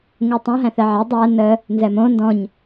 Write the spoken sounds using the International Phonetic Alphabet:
ŋ u tˤ õ ɦ æ̃ θ ɛ ʕ ɛ dˤ æ n ə | n z ɛ m õ n d ɔ̃ ɲ

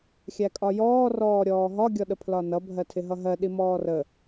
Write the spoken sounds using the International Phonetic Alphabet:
xʲ æ kʼ ɒ j ɔː r ɔː ɾʲ ɔː ɦ ɒ ɡʲ ɔ ɗ ə pʰ l ɒ n ʌ bʱ ɜ tʰ ɪ ɦ ʌ ɦ ɜ ɗ i m ɔː r ə

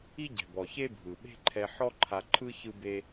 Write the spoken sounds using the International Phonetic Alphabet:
i˥ ɟ ɛ̤˩ b ɔ˩ ç e˥ bʱ ɯ˩ ɓ e̤˥ ǃʰ ɛ˧ ħ ɔ˥ ǃʰ a˧ ǃʰ ɯ˥ ç ɯ˥ b e˥

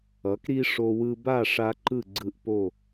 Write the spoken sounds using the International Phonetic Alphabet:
ʌ˩˥ k ɾ i˦ ʂ o˦ w ɯ˦ b a˥˨ ʂ a˦ ǃ ɯ˥˨ ɡ͡ǀ ɯ˦ ʔ p o˥˨

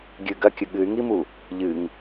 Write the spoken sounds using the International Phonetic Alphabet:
ɡʲ ɨ ɡ ɐ kʲ ɨ ɠ ɨ y̯ ŋ i m u | ʎ ɨ ŋ

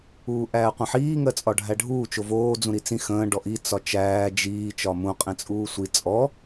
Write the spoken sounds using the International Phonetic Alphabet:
uː ʔ æː qʷ ə̃ ħ iː ŋ ɜ t͡sʼ ɒ ɖʱ æ ɖʱ uː t͡ʃ o v oː d͡z ũ ɾ i t͡s ĩ x ə̃ː ɖ ɔ ʔ i t͡s ɒ t͡ʃ æː d͡ʒ iː t͡ʃ ɒ m ũ qʼ ĩ t͡sʼ uː sʷ i t͡sʼ ɔ

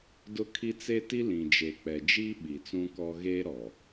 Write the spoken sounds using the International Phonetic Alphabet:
d ʊ˦ kʰ i˦ t͡s e˦ t i˦ l ĩ˨ d͡ʒ e˨ k͡p ɛ˨ d͡ʒ i˦ ɓ i˨ t͡s ũ˦ k ɔ˦ ɣ eː˦ ɾ ɔ˨

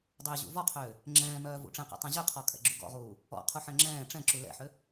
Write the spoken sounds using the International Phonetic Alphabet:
dˤ ʏː ʑ ṵ v ɔ qʰ ʏː | ŋ͡ǁ ɛ̃ː m œː v ṵ ʈ͡ʂ ɛ̃ q ɛ̰ tˤ œ̃ ʑ ʏ qʰ ɔ kʼ ɛ̰ ɡ͡ǁ u ɡ ɔ̰ ʁ uː | ɔ̰ qʰ u ħ ɛ̃ ŋ͡ǁ ɛ̃ː ʈ͡ʂ ɛ̃ ǁ u l ɛ̰ ħ ʏ

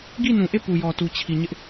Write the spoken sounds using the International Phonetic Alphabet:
ɡ i˦˨ n ũ˨ ʔ e˦˨ p u˨ j ɔ˨ t u˨ t͡ɕʰ i˨ ɲ ɪ˦ ʔ

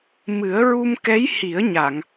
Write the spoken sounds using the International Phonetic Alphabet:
m ɨ˨˩˦ ə̯ ɹ u˧ m k ɛ˧˥ j h i˨˩˦ ə̯ ɲ a˨˩˨ ŋ

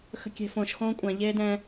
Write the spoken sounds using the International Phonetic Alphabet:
x ə̤ kʲ e̤ f õ ʃ x õː kʷʼ ã ʎ eː d ɛ̃

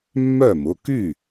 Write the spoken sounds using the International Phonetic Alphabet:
mː œ˥˩ m ʊ˩˧˩ k y˥˩

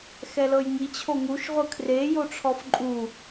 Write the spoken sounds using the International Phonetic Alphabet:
x ɛ l ɤ j ŋ i t͡ɕʰ o ŋ u ʃ ʁʷ ɯ kʰ r e j o ʈ͡ʂʰ ɔ f ǃʼ u

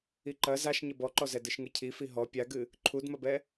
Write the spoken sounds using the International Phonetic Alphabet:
i ǃ ɐ z a ʃ ɲ ɘ b ɔ ǃ ɔ z ɛ d ɨ ʃ ŋ ɨ cʰ i f i ɦ ɔ pʲ a ɡ ɨ | ǃʰ u d m ɐ b ɛ

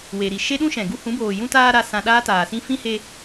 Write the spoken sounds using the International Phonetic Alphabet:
w e˨ ɾ i˨ ʃ e˦ ɗ ũ˦ ʃ ɛ̃˨ ɡ u˧ h ũ˨˦ b oː˨ j ũ˧ t aː˧ ɾ a˧ s ã˧ ɗ aː˦ t aː˨ s ĩ˦ f ĩ˦ h e˧

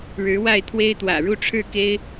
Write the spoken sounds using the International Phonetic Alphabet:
ɻ ɻ̩˧˥ w a˥˩ ɪ̯ t̪ʰ w e˥ ɪ̯ t̪ w ä̰˨˩ ɻ u˥˧ ʈ͡ʂʰ ɻ̩˥˩ k e˥ ɪ̯

